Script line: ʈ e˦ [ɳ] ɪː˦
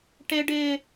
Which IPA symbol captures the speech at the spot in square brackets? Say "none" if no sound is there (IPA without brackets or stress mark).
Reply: ɖ